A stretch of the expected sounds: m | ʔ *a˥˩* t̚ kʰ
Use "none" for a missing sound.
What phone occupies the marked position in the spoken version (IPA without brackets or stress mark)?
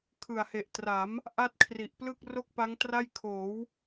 a˥˩